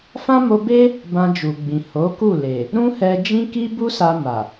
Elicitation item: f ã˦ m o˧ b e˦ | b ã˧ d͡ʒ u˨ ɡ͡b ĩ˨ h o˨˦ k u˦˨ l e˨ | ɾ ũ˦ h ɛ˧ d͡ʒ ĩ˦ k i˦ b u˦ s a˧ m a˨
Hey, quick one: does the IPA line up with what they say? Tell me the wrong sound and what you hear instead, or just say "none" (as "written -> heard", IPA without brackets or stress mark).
none